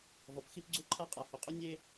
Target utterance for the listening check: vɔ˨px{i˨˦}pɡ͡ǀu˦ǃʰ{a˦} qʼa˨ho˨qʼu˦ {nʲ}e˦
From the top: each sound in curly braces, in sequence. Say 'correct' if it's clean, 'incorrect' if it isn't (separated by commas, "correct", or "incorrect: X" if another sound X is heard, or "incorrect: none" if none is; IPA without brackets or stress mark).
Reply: incorrect: i˦, correct, correct